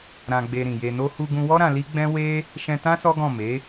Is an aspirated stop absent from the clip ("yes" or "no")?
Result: yes